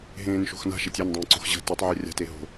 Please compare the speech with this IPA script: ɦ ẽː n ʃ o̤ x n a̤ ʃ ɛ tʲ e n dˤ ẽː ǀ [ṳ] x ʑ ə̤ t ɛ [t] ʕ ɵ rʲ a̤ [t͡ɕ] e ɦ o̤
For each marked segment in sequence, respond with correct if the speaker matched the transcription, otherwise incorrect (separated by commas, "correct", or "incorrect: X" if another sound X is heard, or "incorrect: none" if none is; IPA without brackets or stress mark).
incorrect: o̤, incorrect: tˤ, incorrect: t